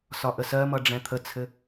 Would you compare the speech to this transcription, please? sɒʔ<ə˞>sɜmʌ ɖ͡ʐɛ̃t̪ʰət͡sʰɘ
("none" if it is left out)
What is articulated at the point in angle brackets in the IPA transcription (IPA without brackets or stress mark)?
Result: ə